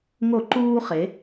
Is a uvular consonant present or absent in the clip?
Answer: present